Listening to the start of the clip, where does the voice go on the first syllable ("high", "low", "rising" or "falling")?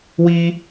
high